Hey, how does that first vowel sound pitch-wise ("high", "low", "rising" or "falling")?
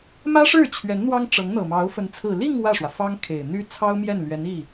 high